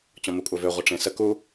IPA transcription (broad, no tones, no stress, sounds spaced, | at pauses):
t͡ɕ ɔ̃ m u kʷʼ œ v ø ʁʷ ə ʈ͡ʂ ẽ s ə k u